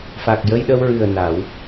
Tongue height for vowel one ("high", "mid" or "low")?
low